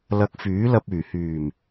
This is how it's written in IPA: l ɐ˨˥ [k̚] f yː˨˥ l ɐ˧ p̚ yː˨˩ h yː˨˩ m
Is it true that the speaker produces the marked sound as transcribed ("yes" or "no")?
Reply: yes